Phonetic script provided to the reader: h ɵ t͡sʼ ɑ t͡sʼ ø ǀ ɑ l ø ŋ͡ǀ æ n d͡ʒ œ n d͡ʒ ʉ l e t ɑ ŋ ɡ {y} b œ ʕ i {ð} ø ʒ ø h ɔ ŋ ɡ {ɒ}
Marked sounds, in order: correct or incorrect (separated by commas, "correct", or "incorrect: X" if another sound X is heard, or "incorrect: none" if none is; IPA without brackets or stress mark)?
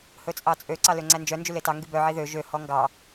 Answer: correct, correct, incorrect: ɑ